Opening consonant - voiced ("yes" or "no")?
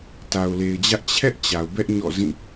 no